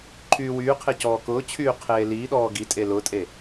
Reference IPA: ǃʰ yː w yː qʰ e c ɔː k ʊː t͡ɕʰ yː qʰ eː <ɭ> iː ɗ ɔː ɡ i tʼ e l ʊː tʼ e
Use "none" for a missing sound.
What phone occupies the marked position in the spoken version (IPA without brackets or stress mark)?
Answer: l